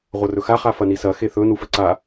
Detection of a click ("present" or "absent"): present